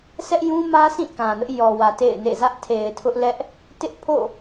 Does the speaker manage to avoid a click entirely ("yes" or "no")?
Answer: yes